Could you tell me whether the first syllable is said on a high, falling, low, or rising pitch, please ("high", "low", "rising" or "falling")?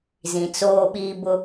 low